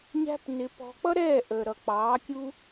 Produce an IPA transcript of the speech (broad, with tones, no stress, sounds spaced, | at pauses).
ɲ æ̤˦ p n ɪ˧ p ɔ̤˧ k͡p ʌ˦ ɾ ɛː˦˨ ʔ əː˨ ɾ ʌ˨ k͡p ɑː˨˦ kʲ u˦